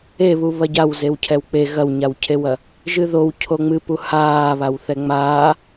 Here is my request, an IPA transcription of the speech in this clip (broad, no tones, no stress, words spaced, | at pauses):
eβu βɐɟaw zewcʰɛwk͡pe ɣɐwɲawcʰewɐ | ʒɨðow cʰoŋ͡mɨpu haː βawθɛŋ͡maː